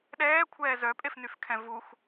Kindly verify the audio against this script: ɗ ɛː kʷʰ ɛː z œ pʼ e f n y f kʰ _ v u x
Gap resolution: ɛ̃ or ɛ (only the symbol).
ɛ̃